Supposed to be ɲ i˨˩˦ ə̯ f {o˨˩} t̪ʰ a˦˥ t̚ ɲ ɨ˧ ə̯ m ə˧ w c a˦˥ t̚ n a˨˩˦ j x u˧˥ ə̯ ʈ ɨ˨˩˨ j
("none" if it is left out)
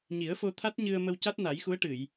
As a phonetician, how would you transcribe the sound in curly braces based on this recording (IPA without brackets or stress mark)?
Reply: o˧